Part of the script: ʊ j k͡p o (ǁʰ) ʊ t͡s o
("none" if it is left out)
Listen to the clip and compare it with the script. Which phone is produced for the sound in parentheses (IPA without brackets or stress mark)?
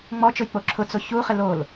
ǁʰ